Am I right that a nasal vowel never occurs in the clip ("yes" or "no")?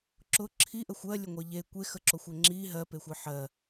yes